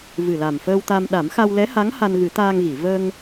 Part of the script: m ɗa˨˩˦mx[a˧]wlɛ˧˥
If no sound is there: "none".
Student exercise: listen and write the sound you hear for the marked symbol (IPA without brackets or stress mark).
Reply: a˧